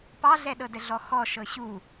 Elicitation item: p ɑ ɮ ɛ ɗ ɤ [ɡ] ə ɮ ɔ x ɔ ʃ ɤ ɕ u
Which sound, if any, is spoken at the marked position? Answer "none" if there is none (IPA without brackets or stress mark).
d